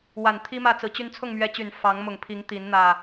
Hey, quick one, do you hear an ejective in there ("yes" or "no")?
no